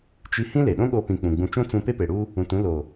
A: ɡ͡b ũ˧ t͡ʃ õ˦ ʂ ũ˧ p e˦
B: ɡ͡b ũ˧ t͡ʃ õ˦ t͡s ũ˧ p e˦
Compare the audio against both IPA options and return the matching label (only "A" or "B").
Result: B